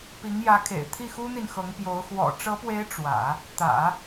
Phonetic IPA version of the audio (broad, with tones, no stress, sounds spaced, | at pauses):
p i˧˥ ŋ j ä˧˥ kʰ ḛ˨˩ ɪ̯ t̪ʰ i˥˩ x u˥ n̪ i˨ n x ɤ˧˥ ŋ p j o˧˥ ʊ̯ x w ɔ̰˨˩ ʈ͡ʂ ɤ˧˥ p w e˧˥ ɪ̯ ʈ͡ʂ w ä̰˨˩˦ | t̪ ä̰˨˩˦